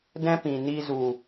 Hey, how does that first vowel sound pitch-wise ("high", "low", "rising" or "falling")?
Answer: high